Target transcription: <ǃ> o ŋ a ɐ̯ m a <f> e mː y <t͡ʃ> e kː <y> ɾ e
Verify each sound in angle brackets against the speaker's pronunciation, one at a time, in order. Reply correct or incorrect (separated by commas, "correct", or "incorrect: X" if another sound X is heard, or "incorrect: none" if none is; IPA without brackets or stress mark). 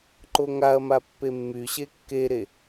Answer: correct, incorrect: pː, incorrect: ɕ, incorrect: e